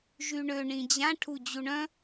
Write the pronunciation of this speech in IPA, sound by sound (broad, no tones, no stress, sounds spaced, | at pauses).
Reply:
ʒ y ɳ ø ɳ ĩ d͡ʑ ã ʈʰ u d͡ʑ u ɳ œ̃